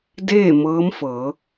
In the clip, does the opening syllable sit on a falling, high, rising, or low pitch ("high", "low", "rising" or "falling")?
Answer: falling